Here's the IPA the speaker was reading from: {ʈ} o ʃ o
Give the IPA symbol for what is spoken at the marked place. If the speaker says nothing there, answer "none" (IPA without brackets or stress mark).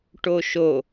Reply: ʈ